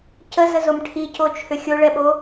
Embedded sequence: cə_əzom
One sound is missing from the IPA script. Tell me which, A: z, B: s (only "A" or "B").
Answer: A